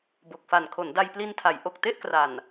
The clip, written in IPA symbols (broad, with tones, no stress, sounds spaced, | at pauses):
b o˨˩ k̚ f a˨˩ n kʰ o˩˦ n d a˧ j p l i˧ n tʰ a˩˦ j ʔ o˨˩ k̚ t e˥˩ ʔ k r a˨˩ n